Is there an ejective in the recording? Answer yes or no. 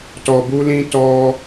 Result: no